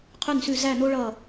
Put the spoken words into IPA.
qʰʉ˦˨nsʉ˦˨ zæ˦˨no˦ ɭʌ˦˨

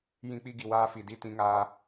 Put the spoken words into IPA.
jĩ˧k͡pi˧ɡi˨ waː˧fi˨di˦˨ tĩ˧ŋaː˧

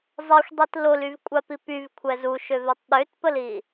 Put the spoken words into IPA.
zˤɛxʷdˤit lolyvkʷʼapi pyvkʷʰɛz uʃøvetˤ ɗøtpəli

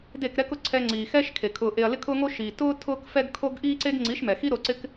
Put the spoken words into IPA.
de˦˨kɾɛ˦kʊ˧ ǀʰɛ˧ŋ͡ǀiː˨xɛ˦ʃ kʰe˨ kʰʊː˨ʔe˨ɐ̯ lɪ˦kʰʊː˦ŋo˦ ʃiː˨ tʊː˦ tʰʊː˦kfɛ˦ɡkʰo˦ɡ ʔiː˦ǀe˦ɡ ŋ͡ǀi˨˦ʃmɛ˨xi˦ ɾo˧ǀɪ˦k

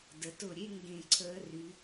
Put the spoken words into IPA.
də˩˧tʊ˧˩ ɾʲe˥ ŋɡẽ˧˩ ǀʰəː˧ry˩˧

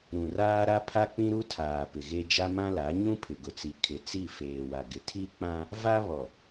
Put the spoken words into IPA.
ɾũ˨raː˦ɾa˦ pʰa˦k͡pĩ˦ɾu˦tʰaː˨ pɪ˨ɣe˦ d͡ʒa˦mã˦la˨˦ ɲũ˦pʰɪ˨ɡʊ˨t͡si˨ kʰɪ˨t͡si˦˨ feː˨wa˨ɡɪ˨ tʰi˦k͡pã˦ | va˦βɔ˨

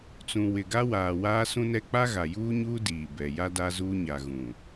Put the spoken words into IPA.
t͡sũ˨wɪ˨ɡa˦waː˨ waː˦sũ˦nɛ˦ k͡pa˦ɣa˨juː˦ɲuː˦ diː˨ bɛ˨ ja˦da˦zuː˦ ɲa˨ɣũ˨

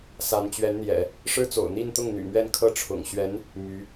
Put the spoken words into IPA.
sa˧˥n t͡ɕɥɛ˧˥nn̪jɛ̰˨˩˦ | ʂɻ̩˥t͡so̰˨˩ʊ̯ n̪i˥˧nt̪ʊ˥˩ŋ n̪y̰˨˩mɥɛ˥˧n kʰɤ˥˩ʈ͡ʂʰʊ̰˨˩ŋ ɕɥɛ˧˥n | my˧˥

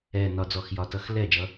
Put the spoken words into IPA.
ɛː˨˩nɒ˨˩d͡zɔ˨˩x jɒ˨˩tʌ˧˩˧x lɛː˥˩ d͡ʒʌ˨˦

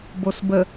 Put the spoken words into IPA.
bosbə

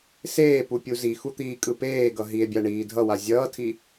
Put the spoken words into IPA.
seː pupʲuzixu t̪iːkʼɯpeːɡʌ ɦie̯bʲa ɳiːdʱʌwa zʲʌːtʰi

